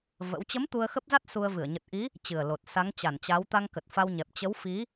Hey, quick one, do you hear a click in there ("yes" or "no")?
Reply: no